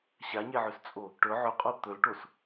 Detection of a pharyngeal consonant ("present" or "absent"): present